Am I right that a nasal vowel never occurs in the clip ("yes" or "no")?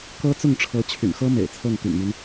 yes